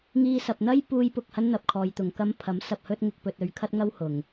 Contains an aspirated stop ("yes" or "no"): yes